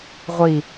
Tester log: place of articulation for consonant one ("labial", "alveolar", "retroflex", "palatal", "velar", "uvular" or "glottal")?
uvular